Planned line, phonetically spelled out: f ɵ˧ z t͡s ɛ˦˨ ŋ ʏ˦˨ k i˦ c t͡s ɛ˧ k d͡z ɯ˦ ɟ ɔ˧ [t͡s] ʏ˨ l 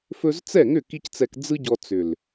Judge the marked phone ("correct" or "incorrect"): correct